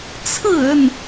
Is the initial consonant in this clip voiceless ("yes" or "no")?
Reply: yes